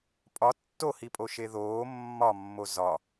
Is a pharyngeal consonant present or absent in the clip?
absent